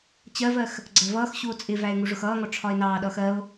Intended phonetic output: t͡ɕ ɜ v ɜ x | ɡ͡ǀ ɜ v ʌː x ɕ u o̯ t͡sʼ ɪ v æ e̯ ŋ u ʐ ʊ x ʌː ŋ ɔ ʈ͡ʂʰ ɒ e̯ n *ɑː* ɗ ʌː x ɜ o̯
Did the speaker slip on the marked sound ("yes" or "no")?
no